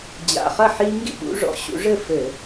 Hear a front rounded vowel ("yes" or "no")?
no